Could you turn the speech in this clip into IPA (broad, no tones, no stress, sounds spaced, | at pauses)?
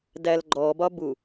d æ l ɡ͡ǃ ɔ b ɒ b u